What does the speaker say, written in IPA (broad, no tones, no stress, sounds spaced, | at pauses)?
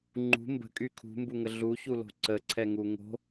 ŋ͡ǃ ṳ m b ə̤ kʼ y kʰ ṳ m b u ŋ ə ɮ u ç u l o̤ ǀ ə ǀʰ ɛ ŋ u ŋ o̤